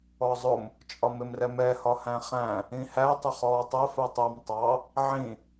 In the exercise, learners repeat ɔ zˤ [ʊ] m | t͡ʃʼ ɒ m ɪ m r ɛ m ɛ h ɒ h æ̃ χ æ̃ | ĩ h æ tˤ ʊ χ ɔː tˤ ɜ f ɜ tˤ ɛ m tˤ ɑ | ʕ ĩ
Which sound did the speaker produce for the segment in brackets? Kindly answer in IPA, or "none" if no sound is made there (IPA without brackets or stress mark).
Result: ʊ